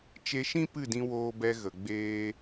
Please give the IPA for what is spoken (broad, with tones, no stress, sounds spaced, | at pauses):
t͡ʃ e˧ ʃ ĩ˦ p ɨ˦˨ d ĩ˧ w oː˧ b ɛ˧ ɣ ə˨ ɡ͡b eː˧